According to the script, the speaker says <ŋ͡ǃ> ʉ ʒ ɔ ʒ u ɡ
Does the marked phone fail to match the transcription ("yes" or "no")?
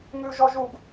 yes